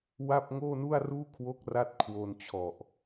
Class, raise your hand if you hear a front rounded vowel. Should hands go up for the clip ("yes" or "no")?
no